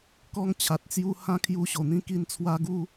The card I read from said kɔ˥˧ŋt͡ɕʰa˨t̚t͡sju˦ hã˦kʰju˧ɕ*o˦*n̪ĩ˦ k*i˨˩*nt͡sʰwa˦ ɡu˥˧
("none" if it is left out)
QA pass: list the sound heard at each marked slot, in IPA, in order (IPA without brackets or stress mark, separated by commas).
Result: o˨˩, i˧